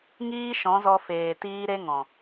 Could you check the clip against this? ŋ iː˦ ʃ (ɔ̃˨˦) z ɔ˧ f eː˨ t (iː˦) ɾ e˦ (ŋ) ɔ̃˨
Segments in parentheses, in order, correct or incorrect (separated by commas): correct, correct, correct